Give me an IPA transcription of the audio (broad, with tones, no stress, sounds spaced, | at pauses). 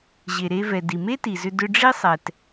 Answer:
ʑ e˩ ɾ e˧ v ɛ˩ d i˩ m e˥ t i˩ z ʏ˧ d ʏ˧ ɖ͡ʐ i˥ sˤ ɛ˩ t